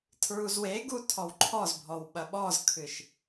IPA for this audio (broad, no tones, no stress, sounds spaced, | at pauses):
tʰ ɹ u z w e ɡ u tʰ ɔ w ǃʰ ɔ z bʱ ɔ w ɓ ɐ ɓ ɔ z kʰ ɨ ʃ